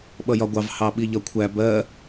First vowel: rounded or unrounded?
unrounded